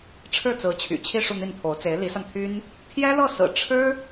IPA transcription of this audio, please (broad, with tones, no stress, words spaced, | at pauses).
ʈ͡ʂʰɻ̩˥˩t͡sɹ̩˧˥ t͡ɕʰy̰˨˩t͡ɕʰi˥˧ ʂu˥˧n̪i˥˩nt̪ʰo˧˥ʊ̯ t͡se˧˥ɪ̯li˧˥sa˧nt̪ʰy˥n | t̪ʰjɛ˥lɤ˥˩sɹ̩˨˩ ʈ͡ʂʰɻ̩˥